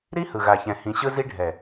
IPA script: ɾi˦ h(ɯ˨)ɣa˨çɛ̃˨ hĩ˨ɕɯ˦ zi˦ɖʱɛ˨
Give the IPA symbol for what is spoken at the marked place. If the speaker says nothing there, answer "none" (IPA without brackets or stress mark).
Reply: ɯ˨